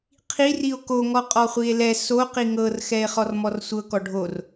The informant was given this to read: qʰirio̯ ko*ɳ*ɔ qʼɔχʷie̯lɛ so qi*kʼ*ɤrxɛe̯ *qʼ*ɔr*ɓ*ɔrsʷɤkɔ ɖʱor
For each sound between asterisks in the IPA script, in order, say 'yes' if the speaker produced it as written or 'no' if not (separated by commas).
no, no, no, no